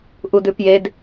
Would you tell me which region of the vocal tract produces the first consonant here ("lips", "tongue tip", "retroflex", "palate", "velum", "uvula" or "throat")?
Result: throat